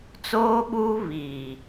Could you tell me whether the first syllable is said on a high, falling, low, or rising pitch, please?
high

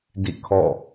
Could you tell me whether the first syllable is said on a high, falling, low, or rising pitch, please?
falling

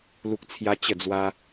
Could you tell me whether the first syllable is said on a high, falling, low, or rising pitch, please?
high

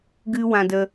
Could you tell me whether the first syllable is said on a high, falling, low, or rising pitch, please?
high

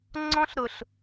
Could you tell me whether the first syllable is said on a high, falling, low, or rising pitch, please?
high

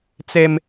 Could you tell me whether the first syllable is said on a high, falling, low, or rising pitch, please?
high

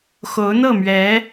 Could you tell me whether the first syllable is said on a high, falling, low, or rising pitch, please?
rising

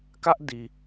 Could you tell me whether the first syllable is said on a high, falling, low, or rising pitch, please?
high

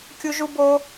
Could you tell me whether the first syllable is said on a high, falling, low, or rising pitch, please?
high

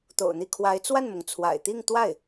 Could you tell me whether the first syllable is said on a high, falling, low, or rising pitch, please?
low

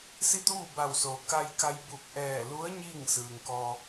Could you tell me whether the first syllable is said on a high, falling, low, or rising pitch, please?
falling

